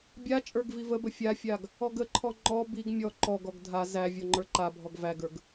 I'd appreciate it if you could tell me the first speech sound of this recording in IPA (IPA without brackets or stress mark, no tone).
bʲ